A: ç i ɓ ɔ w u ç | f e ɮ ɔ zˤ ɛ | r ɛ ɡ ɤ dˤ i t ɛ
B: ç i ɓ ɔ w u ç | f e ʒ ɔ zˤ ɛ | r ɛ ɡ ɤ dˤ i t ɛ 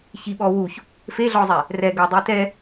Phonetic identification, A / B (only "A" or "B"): A